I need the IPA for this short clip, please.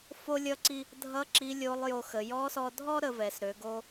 fo˥lʲʌ˥ǀi˥ | dʱʌ˧˥ ǁi˧˥lʲo˧˥lˠjo˧xə˩˧ jɔ˧˥sɔ˧dʱɔ˥ ɾə˧vɛ˩˧sɾø˩˧ ɡo˥

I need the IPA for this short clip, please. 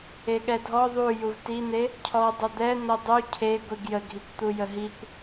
eɠɛdʱɔ ðˤu juvtin̪e | cʰɔ dˤəd̪ɛ n̪ɤdˤu cʰe ɡʷiɡjəɡʱikʷt̪u jəɦikʷ

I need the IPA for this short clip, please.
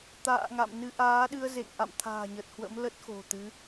t̪a̰ː˧˨ ŋa̰˧˨mnɨ˧ ʔaː˨˦ɗɨ˧ə̯zḛ˧˨ŋ ʔa̰˧˨mt̪ʰa̤ː˨˩ɲə˨˩t̚hwə̰˧˥m lə˦˥t̚xo̤˨˩t̪ɨ˨˦

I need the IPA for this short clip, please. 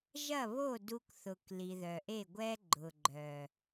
ʒɐ˦˨βo˦˨ du˧kθʊ˨k li˨ðœ˨ʔe˦˨ɡʷɛ˦ ɡ͡ǃʊ˨ɡ͡ǃœ˨

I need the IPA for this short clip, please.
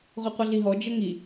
ʁʷɛqʷəɮiɦɔ d͡ʒəŋi

